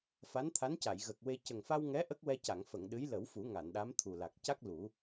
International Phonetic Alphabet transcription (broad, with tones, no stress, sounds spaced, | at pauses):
f a˧˥ n t̪ʰ a˧˥ n c a˨˩˨ j ɣ ə˨˩ k̚ w e˧ c ə˨˩ ŋ f a˧ w ŋ ɛ˧˥ ʔ ə˦˥ k̚ w ɛ˧ c a˨˩˨ ŋ f ə˨˩˨ ŋ ɗ ɨ˧˥ j l ə˨˩˦ w f u˨˩˦ ŋ a˨˩˨ n ɗ a˧˥ m t̪ʰ u˨˩ l a˨˩ k̚ c a˦˥ k̚ l u˨˩˦